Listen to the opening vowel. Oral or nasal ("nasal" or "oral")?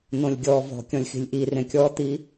nasal